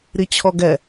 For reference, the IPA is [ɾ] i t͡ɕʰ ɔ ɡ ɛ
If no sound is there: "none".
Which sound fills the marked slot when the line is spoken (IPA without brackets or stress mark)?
ɾ